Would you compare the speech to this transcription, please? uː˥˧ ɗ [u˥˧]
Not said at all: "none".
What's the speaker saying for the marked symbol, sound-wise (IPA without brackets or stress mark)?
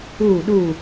u˥˧